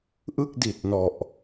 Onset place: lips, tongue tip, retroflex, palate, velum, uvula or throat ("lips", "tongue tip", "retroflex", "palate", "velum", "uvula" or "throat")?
throat